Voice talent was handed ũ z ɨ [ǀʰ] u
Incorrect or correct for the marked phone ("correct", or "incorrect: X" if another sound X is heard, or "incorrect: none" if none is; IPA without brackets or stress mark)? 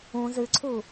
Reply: correct